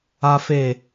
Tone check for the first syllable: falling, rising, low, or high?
high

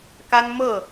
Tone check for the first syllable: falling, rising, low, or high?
high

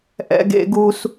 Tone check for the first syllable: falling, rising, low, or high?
high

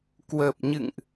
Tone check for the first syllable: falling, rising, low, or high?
low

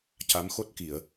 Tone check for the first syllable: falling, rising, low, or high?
rising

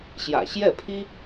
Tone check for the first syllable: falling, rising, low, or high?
low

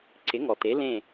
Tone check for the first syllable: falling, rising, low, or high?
rising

